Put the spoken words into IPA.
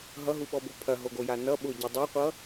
ɦ ʌ ɦ u ɓ ɔ b o pʰ ɐ ɦ o ɡ o j a n ʌ ɓ ʊ ɟ ʊ dˤ a qʷ ʌ

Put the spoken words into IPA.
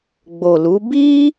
ɡ͡b o˨ l u˨˦ b i˦

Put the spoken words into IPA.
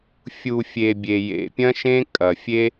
fʲ u˨ fʲ e˨ bʲ e˨ j ḛ˨ pʲ ɐ̃˦ ʃ ẽ˦ kʼ ɐ˨ fʲ e˦

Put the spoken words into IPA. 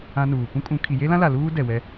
ã˦ n uː˨ p ũ˦ kʼ ũ˨˦ kʰ i˨ j e˦ l ã˦ l a˨ l uː˦ d ɛ˨ w ɛ˦

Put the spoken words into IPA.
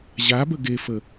ʑ a b ə ɡ e f ə

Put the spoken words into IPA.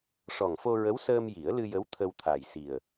ʂ ɔ˨˩ ŋ f o˧ ɹ ə˧˥ w s əː˧ m j i˨˩˦ ə̯ l ɨ˧ j ə˧˥ w t̪ʰ ə˧ w t̪ʰ a˨˩ j s i˨˩ ə̯

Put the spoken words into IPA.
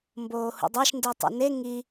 m b oː h ṵ dˤ a ʃ n d i tˤ ṵ n e ŋ i

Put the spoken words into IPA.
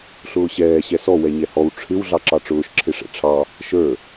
ɬ ʊː ɕ ɛː ɕ ɛ s ɔ w ɛ ɲ ɛ h ɔ w ʈ͡ʂʰ ɪ w ɮ ɑ ǁ ɑ ʈ͡ʂ ʊː ʃ ǁʰ ɪ ʂ ɛ̰ ʈ͡ʂʰ ɑ | ʃ ə˞

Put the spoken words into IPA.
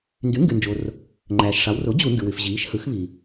n d y˩˥ ŋ ɡ y˩ n d͡ʒ o˩ r | ŋ͡ǃ æː˩ ʃ ʂ ɑ˩˧ w r o˩˥ d͡ʑ u˧˩˧ n d ɯ˩ w y˩ f ʑ iː˩˧ ʃ h ɯ˩˧ x β i˩

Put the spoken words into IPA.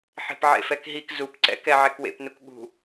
ħ e̤ p ʕ ḛ f ɛ k ɦ i k z u p ǀ ɛ̰ k ɛ ʕ ɛ k w ḛ p n u k ɠ ṳ

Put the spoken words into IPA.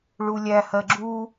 ɭ u lʲ æ h ɜ ɡ͡ǁ u

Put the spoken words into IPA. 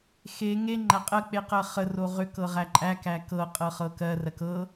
x e ŋ e ŋ͡ǃ æ qʼ ɜ k͡p e q ɜ χ ə r o ʁ ʏ k ɤ ʁ æ ǃʼ æ k æ k ɤ qʼ ɤ χ ɤ k ɜ r ɜ k ɤ

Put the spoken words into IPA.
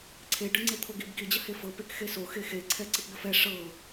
ǀʰ e ɖ ɤ ŋ͡ǀ e t̪ʰ o ɡ i b ɡ i d͡ʑ ə h e f ɤ p e k x e s o x e x e ǀʰ ɛ ǀ i p b ə f ɛ ʂ ɤ

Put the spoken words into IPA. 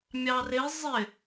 mʲ ɑ r ɪ zˤ ɪ

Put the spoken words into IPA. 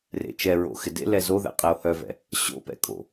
r ḛ t͡ʃ ɛ ɹ o̰ x ɪ d ḛ l ɛ z o ð ɛ̰ qʼ ɛ o̯ h œ v ɛ̰ | ɕ o̰ p ɛ̰ kʼ o̰

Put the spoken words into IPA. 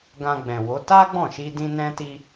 ɡ ã˧ ɡ͡b ɛ̃˨ w o˨˦ t a˦ ɡ͡b ɔ̃˦˨ ʃ i˧ d ĩ˧ n ɛ̃˧ t i˧

